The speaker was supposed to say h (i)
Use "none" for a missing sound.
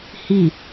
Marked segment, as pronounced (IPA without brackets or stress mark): i